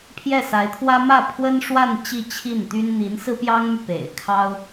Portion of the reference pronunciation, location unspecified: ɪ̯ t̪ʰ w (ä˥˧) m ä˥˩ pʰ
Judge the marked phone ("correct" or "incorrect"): incorrect